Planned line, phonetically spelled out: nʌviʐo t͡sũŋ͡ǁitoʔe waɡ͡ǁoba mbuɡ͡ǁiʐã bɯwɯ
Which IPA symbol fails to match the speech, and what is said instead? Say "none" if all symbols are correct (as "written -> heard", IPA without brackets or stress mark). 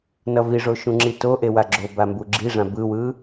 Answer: t͡s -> ʃ